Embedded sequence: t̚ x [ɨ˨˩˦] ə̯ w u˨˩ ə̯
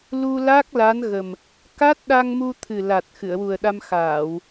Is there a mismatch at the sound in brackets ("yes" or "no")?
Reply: yes